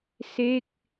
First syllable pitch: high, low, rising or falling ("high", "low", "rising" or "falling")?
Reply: falling